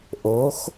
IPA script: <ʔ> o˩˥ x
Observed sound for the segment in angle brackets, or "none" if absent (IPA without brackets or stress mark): ʔ